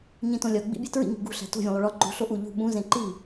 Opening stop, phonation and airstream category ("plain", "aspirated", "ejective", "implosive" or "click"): plain